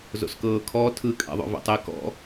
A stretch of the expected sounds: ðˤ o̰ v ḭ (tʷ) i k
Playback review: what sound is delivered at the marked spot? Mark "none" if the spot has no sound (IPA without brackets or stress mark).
tˤ